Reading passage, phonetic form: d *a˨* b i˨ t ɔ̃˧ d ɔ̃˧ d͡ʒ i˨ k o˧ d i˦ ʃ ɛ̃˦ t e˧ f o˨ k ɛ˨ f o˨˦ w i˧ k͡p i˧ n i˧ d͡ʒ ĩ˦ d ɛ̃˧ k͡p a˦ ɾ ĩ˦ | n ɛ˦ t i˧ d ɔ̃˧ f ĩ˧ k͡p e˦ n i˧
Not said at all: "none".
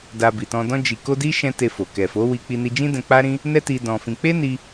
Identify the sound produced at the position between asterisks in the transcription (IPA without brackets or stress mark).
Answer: a˧